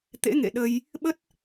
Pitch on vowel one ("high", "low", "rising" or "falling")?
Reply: rising